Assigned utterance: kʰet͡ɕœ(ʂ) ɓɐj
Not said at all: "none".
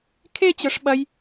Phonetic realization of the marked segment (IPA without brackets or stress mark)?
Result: ʂ